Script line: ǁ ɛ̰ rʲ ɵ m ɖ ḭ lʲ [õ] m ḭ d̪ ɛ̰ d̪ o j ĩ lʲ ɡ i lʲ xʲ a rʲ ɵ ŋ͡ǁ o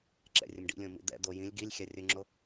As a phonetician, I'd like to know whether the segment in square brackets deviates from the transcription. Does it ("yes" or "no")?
no